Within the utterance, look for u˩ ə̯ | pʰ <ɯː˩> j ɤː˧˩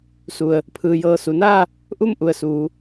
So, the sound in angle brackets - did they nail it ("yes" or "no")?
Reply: yes